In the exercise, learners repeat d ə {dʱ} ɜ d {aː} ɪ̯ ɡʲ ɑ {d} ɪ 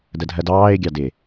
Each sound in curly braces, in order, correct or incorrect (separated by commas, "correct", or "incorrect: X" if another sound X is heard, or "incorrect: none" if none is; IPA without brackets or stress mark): correct, incorrect: ɑː, correct